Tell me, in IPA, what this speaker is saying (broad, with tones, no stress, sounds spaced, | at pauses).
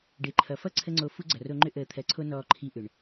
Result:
ɖ e˨ ǃʰ ʌ˨ f ʌ˦ ǀʰ ə˦ ŋ͡ǀ o˧ f u˦ ɡ͡ǀ ʌ˨ r o˧ ŋ͡ǃ ʏ˦ ʔ əː˨ t̪ʰ ɜ˨ ǀʰ o˧ n ɔː˧ ǃʰ i˧ ʔ ʏ˨ ɳ